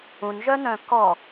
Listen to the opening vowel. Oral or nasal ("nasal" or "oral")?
nasal